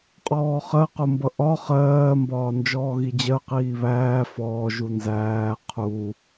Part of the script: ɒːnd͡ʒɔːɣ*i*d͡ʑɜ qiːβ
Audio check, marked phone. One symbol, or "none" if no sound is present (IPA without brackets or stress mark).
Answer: i